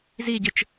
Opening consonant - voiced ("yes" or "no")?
yes